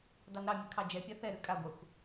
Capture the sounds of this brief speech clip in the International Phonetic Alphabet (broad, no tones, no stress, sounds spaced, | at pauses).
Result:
d ɑ n ɾ ɑ mʲ ɨ kʰ ɑ d͡ʒ ɛ pʲ a θ ɛ ɾ ʉ kʼ a ɡʷ a xʷ